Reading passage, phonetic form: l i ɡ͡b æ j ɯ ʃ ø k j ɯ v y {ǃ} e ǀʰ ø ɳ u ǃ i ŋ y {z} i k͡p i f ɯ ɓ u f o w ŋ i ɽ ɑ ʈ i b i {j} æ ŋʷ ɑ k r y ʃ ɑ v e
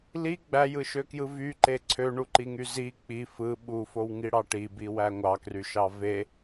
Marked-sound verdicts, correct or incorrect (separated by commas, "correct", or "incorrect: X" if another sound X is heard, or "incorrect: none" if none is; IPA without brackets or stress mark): correct, correct, incorrect: w